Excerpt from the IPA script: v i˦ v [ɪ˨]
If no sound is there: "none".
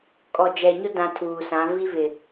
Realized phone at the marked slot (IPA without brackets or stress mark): ɪ˨